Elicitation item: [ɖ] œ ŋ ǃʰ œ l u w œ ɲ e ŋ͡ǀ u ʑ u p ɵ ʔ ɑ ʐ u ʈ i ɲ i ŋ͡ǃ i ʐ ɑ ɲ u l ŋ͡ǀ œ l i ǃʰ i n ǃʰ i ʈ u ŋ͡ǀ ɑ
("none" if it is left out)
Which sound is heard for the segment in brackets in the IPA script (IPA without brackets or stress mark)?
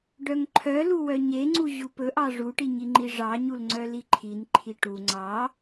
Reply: ɖ